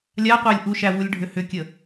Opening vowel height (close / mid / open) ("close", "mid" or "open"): open